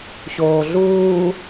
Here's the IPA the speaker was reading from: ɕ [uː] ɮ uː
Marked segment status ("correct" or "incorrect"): incorrect